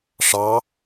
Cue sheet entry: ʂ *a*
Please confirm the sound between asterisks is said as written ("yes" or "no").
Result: no